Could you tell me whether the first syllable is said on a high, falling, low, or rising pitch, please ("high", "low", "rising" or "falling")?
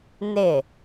falling